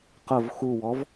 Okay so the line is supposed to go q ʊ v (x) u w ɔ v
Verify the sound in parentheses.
correct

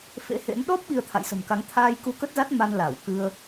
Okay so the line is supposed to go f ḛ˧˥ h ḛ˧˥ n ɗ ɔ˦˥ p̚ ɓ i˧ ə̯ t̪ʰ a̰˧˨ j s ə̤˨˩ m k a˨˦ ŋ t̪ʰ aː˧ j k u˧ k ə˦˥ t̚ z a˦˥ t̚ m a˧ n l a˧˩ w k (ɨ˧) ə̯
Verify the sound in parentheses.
correct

